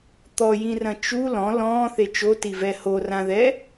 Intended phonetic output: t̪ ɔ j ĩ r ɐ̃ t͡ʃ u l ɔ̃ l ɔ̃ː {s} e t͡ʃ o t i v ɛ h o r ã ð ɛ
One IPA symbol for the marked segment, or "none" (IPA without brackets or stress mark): θ